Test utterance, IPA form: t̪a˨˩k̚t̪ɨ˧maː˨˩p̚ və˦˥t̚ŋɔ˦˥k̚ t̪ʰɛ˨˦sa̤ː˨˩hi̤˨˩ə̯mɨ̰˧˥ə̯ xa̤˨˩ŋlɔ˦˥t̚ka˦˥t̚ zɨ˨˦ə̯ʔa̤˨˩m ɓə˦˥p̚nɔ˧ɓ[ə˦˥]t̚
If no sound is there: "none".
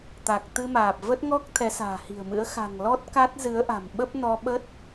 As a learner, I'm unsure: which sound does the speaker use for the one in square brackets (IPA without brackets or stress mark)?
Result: ə˦˥